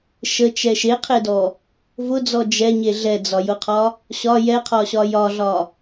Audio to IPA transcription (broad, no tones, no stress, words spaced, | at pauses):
ʃət͡ʃɛ ʃeqʰedɔ | vʊd͡zɔ d͡ʒɛɲe ɮɛd͡zɒjʊqʰɒ | ɕɒ jɛqʰɒɕɒ jɒɮɒ